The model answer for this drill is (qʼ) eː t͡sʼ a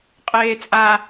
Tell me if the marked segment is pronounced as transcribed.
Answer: yes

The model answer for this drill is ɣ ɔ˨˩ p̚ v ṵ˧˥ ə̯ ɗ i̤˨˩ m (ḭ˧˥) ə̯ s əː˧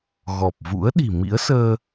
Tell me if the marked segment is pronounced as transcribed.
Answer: yes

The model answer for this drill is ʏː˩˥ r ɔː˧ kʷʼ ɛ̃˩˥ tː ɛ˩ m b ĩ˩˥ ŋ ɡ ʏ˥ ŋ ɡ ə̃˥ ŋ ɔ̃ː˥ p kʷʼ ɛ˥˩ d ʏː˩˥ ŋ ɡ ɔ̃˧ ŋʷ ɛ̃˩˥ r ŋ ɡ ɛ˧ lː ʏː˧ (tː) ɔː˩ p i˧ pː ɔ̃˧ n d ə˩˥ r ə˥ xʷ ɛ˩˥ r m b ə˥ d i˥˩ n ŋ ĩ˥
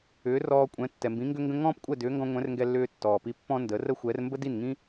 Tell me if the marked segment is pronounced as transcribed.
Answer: yes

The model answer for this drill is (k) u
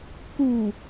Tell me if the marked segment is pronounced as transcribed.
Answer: yes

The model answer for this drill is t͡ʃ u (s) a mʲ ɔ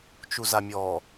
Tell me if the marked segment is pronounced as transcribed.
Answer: no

